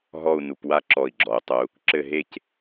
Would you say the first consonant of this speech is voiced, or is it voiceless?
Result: voiced